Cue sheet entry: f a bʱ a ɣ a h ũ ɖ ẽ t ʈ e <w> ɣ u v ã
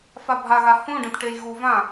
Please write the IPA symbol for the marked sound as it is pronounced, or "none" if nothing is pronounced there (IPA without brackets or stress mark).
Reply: j